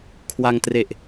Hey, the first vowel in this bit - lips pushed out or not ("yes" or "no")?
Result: no